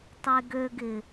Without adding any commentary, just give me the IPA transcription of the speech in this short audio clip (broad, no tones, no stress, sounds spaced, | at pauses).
tˤ e ɡ ø ɡ ɪ